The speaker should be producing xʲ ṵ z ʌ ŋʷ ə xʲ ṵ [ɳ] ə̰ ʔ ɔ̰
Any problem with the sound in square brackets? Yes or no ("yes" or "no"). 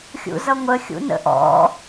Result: yes